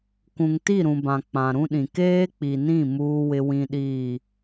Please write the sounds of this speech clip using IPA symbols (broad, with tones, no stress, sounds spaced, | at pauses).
kʷ ũ˨ ŋ t i˦˨ ɾ ũ˨ b ã˨ k͡p ã˨ ɾ ũ˦ ɗ ĩ˨ k eː˦ k͡p i˨ n ĩ˦˨ m uː˦ w ɪ˦ w ĩ˦ ɗ iː˦˨